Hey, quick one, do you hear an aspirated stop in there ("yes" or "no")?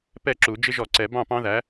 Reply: no